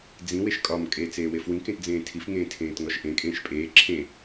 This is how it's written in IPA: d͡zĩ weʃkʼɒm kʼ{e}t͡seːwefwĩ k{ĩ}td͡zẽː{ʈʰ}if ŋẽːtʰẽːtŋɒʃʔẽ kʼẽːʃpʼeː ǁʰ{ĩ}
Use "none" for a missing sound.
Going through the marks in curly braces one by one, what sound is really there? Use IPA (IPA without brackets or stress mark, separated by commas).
e, ẽ, tʰ, ẽ